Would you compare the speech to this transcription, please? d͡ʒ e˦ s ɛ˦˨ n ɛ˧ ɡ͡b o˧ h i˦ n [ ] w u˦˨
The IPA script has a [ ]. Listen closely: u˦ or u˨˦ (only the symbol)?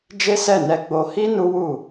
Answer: u˦